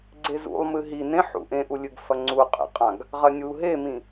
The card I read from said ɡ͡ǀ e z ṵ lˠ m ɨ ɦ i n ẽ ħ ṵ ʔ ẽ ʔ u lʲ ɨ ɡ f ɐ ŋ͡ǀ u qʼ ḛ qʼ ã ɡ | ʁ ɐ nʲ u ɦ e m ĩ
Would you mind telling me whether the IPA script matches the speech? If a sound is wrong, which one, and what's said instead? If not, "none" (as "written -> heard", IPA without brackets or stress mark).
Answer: none